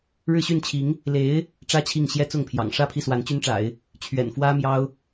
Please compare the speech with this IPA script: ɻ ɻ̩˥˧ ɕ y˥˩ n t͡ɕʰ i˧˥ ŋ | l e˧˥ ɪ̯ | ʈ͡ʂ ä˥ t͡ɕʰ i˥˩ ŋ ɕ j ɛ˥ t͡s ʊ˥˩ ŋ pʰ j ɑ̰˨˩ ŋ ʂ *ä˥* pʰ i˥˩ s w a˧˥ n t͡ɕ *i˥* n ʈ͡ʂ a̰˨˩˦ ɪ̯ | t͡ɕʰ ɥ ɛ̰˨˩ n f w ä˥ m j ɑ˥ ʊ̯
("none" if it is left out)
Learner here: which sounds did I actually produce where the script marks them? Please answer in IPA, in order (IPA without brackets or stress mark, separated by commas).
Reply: ä˥˧, y˥